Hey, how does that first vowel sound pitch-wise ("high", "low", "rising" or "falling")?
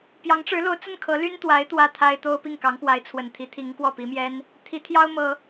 rising